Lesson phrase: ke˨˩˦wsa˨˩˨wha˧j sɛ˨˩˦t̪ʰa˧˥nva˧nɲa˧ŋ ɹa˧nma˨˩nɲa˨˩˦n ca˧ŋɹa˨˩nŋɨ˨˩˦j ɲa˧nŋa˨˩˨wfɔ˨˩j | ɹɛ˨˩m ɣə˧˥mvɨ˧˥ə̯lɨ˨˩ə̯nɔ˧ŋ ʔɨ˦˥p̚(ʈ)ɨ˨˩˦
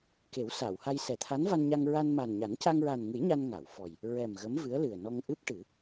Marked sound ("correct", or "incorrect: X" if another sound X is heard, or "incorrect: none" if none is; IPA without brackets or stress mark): correct